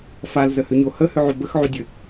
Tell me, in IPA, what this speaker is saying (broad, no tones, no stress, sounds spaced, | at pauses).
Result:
f a l z ə h ʏ ɲ o h ə h ʏ ʕ y b ə x ʕ y dʲ ɘ